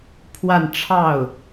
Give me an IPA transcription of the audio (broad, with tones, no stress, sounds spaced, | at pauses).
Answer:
pʰ w a˥˧ n ʈ͡ʂʰ ɑ˥˩ ʊ̯